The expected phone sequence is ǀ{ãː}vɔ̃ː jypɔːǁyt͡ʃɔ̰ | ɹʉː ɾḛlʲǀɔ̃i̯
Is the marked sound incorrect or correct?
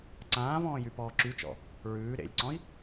correct